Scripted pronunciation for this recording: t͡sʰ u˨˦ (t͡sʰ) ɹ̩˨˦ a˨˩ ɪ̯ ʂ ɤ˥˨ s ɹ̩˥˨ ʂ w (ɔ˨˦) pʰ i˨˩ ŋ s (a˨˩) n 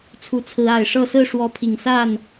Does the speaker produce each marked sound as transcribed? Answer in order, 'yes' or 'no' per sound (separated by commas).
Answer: yes, yes, no